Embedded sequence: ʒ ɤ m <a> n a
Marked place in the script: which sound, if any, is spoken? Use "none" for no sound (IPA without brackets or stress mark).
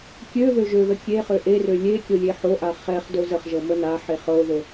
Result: ə